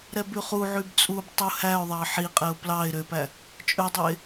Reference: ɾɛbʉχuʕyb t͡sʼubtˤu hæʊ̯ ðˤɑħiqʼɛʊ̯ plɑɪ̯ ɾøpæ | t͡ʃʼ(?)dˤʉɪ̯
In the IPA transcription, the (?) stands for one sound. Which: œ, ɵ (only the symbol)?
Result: ɵ